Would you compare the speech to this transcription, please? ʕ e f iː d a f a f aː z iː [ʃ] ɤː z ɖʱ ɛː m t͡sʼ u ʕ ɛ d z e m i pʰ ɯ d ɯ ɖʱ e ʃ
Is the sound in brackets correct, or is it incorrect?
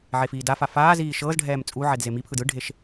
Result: correct